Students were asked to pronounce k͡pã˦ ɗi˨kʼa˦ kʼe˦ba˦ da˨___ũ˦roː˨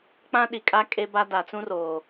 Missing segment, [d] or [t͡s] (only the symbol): t͡s